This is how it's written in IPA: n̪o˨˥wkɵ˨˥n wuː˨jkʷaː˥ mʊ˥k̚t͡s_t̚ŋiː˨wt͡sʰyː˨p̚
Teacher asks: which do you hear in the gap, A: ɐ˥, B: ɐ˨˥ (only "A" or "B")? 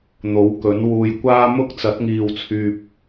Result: B